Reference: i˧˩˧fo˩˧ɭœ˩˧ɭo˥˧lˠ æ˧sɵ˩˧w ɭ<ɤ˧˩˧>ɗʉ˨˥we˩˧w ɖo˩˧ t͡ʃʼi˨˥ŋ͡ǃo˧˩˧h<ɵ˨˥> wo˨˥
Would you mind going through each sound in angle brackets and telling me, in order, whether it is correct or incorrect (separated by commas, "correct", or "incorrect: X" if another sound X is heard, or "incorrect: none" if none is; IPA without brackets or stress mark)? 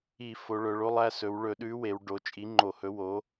incorrect: ɵ˧˩˧, correct